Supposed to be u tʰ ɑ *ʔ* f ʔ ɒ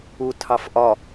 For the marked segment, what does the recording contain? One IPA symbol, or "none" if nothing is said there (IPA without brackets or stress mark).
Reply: none